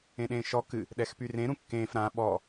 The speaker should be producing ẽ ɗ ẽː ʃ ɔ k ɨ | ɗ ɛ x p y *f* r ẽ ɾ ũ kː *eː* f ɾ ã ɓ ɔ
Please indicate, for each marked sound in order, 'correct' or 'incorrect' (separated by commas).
incorrect, incorrect